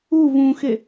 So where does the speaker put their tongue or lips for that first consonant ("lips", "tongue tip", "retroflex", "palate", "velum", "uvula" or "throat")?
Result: lips